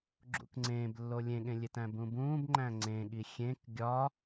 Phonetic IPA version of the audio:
ɡ͡ǁ ṵ k ŋ͡ǀ ẽː b lː o lʲ ẽ ɠ ẽ lʲ e t æ̃ b ũ b ũː b ŋ͡ǃ æ̃ ŋ͡ǀ ẽ ɠ i xʲ ẽ k ɡʲ ɒ

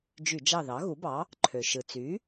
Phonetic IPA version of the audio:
d͡ʒ y˧˩˧ d͡ʒ ɑ˦˨ ð ɑ˩˥ ɣ u˩˥ b ɑ˩˥ | ǃʰ ø˩ ʃ ɯ˩ t͡s y˩˥

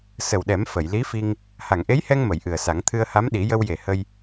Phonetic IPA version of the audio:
s ə˨˩ w ɗ ɛ˨˩˦ m f ə˨˩˨ j l i˧˥ f i˧ ŋ | h a˨˩˨ ŋ ʔ e˧˥ j h ɛ˧ ŋ m ə˨˩˨ j ʔ ɨ˨˩ ə̯ s a˨˩˦ ŋ t̪ʰ ɨ˧ ə̯ h a˧˥ m ɗ i˨˩˦ j ə˧ w j e˨˩ h ə˧ j

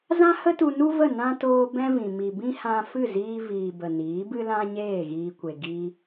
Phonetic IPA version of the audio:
z ã˦ h ə˦ t u˧ n u˦ v ə˦˨ n ã˦ t oː˧ b ɛ̃˦ v ĩ˨ m i˨ b ĩ˦ h ã˧ f ɨ˦˨ z iː˧ v iː˨ b ə˨ n iː˨˦ b ɨ˦ l ã˦ ɲ eː˦˨ ɣ iː˧ kʷ e˨ ɡ i˦

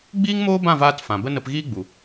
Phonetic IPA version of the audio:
ɡ͡b iː˦ ŋ m oː˦ b ã˦˨ v aː˧ t f ã˨ b ə˦ n ə˧ p ɣ iː˦ ɡ͡b u˨

